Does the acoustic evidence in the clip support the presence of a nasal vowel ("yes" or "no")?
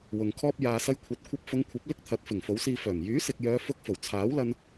no